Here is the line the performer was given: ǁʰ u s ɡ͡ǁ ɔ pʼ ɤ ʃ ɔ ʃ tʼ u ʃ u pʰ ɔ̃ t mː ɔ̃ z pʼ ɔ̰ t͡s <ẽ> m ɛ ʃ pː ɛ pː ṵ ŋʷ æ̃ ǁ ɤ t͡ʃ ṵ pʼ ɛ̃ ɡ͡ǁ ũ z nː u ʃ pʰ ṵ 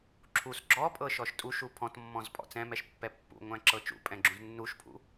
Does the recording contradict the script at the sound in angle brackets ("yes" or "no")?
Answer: yes